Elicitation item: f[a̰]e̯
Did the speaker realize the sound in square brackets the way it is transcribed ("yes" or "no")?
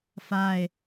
no